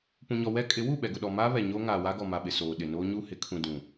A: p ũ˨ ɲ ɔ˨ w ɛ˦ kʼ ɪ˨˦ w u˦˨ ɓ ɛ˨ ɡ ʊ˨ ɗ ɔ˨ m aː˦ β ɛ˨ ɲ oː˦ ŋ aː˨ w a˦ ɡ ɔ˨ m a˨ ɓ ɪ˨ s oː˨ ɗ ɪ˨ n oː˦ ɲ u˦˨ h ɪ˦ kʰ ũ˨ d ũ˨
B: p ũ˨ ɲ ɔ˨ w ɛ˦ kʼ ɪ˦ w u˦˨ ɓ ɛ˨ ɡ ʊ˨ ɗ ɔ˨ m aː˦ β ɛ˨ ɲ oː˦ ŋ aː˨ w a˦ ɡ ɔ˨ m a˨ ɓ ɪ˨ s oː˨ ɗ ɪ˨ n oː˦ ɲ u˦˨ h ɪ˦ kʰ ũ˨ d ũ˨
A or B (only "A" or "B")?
A